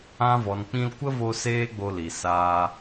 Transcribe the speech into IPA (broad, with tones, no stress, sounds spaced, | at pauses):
ã˧ v ɔ˨ n k͡p ĩ˧ l kʷ ə˦ v o˧ s eː˦ ɡ͡b o˧ l i˨ s aː˧